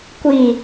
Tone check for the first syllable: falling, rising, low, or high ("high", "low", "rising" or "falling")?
low